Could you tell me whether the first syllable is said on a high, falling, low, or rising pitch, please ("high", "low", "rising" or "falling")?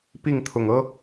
falling